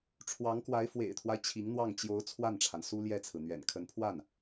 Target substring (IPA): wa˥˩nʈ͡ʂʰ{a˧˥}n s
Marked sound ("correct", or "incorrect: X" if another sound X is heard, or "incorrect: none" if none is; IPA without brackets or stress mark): incorrect: a˩